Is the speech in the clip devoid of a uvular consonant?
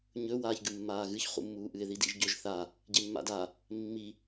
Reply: no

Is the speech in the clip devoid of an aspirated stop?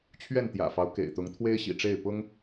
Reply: no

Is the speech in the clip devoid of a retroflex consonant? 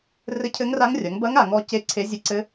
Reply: yes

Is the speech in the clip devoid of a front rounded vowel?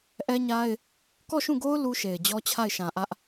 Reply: yes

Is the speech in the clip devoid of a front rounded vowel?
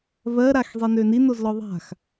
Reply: no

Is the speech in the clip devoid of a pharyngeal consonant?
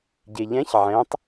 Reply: no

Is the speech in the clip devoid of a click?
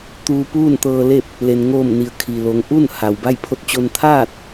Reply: yes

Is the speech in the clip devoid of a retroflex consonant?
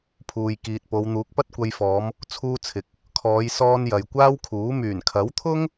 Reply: yes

